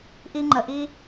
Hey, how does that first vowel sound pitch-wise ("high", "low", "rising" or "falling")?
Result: high